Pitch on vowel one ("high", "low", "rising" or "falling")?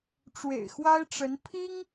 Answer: low